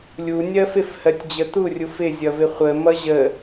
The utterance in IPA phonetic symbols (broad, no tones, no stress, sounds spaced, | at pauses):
lʲ u nʲ ɜ f ɪ f h ɜ tʲ d͡ʑ ə t̪ u rʲ u f ɪ zʲ ʌ v ɪ χʷ ə m ʌ ʑ ə